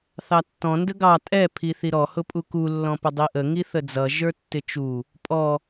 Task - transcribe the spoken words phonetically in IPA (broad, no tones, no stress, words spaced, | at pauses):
θɑtːɔ̃ ndəɡɑ tʼɛ pʰiθiɾɔ hʊpʼuku lːɔ̃pədˤiʔə ŋiθəd͡zʌ ʒə˞tːɪt͡ʃu | pʼɔ